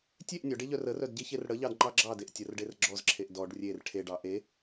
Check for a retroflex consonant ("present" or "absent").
present